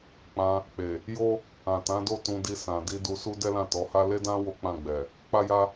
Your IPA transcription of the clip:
k͡p ã˧ | k͡p e˨ | j o˦ | ã˨ t ã˨˦ d o˦˨ t ũ˧ d i˧ s ã˨ d i˧ d u˧ s u˦ d ɛ˦ l ã˦˨ t ɔ˨˦ h a˦ l e˦ d ã˦ w o˦ k͡p ã˦˨ ɡ͡b ɛ˨ | k͡p a˦ j a˦

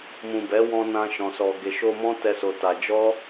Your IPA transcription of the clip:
m ũ˨ b ɛ˨˦ w ɔ̃˧ n ã˧ ʃ ɔ̃˨ s ɔ˨ ɡ e˨ ʃ o˧ m ɔ̃˦ t ɛ˦ s o˧ t a˧ d͡ʒ ɔ˦

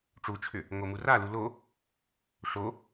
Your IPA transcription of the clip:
ʈ͡ʂ u t͡ʃʰ ʏ | ŋ o m u r a l u l o | ʂ o

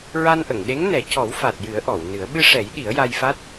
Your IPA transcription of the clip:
ɹ a˧ n ʔ ə˨˩˨ ŋ ɗ e˧˥ ŋ n ɛ˨˩˦ c ɔ˨˩˦ w f a˨˩ t̚ j ɨ˨˩˦ ə̯ ʔ ɔ˨˩˨ w n ɨ˨˩˦ ə̯ ɓ ɨ˧ ʂ ɛ˨˩˦ j ɗ i˨˩˦ ə̯ j a˧ j f a˦˥ t̚

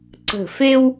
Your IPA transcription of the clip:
ǀ ə̤˧˩ f e˥ w

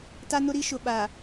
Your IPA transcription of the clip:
t a˦ n ʊ˦ ɾ i˦ ʃ ʊ˨ ɓ a˨

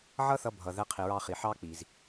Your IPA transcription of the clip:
ʕ ʌ˥ θ ʌ˧ bʱ ʌ˩ ð ɛ˧ qʰ i˩ ɹ ɑ˧ χ i˩ ħ ɑ˥ k͡p i˩ z

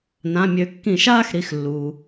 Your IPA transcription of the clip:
n ã˩˧˩ mʲ ø˨˦ kː ĩ˧˩˧ ʃ aː˥˧ x ɾ i˩˧˩ x lː uː˩

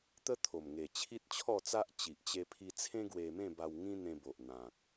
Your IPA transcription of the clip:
t̪ ə˦ t̪ʰ o˨˩ m ŋ e˨˩ t͡ɕʰ i˦ t̚ t͡ɕʰ ɔ˥˧ t͡s a˦ ʔ t͡ɕ i˨ ʔ t͡ɕ e˧ pʰ i˧ t͡sʰ ẽ˦ ɡ w e˧ m ẽ˥˧ b a˧ w ŋ ĩ˦ n̪ ẽ˧ b o˨ ʔ n̪ ã˨ k̚

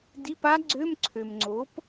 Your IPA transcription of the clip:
d i˧˥˧ p a˦˥ ɡ͡ǀ ø˧˥˧ m ǀʰ ø˨ m ŋ͡ǀ o˨˥ p

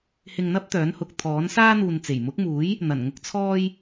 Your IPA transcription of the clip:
h ɪ˧ ŋ n̪ ɐ˥ p̚ t̪ œː˨˥ n h ʊ˨ k̚ t̪ʰ ɔː˨˥ n s aː˥ n̪ uː˨ n t͡s e˨˩ j m ʊ˨˥ k̚ m uː˨˥ j | n̪ ɐ˨˩ n ŋ ʊ˨ k̚ t͡sʰ ɔː˧ j

